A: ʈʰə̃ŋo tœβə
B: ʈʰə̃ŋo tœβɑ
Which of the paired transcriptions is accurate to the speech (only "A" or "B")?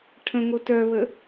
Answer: A